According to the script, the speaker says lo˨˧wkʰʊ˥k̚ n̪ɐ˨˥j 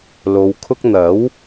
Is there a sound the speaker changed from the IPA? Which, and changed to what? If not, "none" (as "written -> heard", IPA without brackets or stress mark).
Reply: j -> w